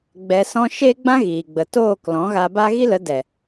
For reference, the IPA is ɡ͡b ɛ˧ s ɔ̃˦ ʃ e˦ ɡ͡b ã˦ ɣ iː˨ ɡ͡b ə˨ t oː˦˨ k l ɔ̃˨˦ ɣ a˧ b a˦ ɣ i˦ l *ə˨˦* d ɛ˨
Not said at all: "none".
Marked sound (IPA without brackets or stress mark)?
ə˨˦